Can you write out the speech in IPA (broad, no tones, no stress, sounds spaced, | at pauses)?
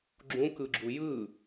ɡ͡ǁ ũ k ɯ ɡ͡ǁ u j ɯ